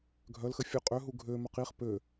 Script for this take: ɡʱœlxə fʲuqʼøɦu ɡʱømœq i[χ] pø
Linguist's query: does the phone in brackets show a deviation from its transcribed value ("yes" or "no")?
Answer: no